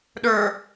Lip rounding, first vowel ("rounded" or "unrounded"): unrounded